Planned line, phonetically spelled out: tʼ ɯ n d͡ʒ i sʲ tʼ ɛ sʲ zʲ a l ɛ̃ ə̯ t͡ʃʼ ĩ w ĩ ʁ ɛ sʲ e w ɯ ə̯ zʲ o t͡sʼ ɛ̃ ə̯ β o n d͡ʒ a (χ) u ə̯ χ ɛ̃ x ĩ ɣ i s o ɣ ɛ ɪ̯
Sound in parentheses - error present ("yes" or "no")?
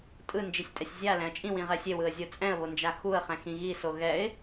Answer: yes